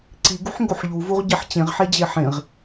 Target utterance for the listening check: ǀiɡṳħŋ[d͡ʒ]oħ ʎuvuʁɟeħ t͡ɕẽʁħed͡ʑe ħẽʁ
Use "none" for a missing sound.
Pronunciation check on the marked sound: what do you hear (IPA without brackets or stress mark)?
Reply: ɡ